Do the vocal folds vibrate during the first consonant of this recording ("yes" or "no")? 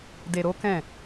yes